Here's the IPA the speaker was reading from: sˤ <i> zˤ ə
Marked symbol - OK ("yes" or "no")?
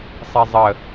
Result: yes